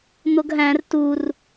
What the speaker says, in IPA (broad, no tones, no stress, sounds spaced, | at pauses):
n̪ o ɡ ɦ æ̃ r t u r